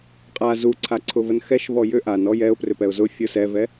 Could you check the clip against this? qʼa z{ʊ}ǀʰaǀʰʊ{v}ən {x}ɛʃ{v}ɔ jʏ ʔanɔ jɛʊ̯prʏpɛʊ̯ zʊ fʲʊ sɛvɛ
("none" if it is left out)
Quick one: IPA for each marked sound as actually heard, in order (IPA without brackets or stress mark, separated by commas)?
u, v, x, v